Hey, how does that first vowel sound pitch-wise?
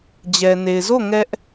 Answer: low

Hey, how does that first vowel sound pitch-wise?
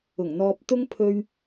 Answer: low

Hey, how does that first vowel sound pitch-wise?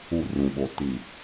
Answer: falling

